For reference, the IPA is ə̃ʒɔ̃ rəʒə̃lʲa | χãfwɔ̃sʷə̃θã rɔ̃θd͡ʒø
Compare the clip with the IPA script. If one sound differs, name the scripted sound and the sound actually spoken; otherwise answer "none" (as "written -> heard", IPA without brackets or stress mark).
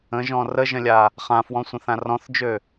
none